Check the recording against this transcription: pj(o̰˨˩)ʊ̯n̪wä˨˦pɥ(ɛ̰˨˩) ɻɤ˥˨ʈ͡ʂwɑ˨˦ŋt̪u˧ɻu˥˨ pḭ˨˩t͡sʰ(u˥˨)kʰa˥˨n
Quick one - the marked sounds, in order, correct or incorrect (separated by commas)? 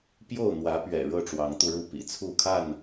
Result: incorrect, correct, correct